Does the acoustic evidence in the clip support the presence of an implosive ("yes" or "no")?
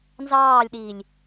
yes